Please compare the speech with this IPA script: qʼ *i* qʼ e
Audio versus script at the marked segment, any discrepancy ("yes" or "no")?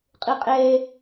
no